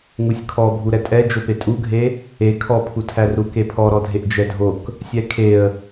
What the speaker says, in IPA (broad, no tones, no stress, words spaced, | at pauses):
ŋusʲkʰɔbʱu ɾɛtʼɛd͡ʒope tʼuɡʱe | e kʰɔpʰutʰær ɾukepʰɔɾɔ dʱeʔd͡ʒɛdʱok | sʲɛkʰeə̯